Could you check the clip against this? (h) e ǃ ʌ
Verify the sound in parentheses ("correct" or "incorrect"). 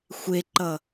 incorrect